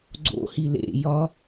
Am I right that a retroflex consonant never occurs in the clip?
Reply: yes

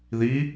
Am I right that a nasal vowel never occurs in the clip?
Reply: yes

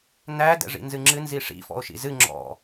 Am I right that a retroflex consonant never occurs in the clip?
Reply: no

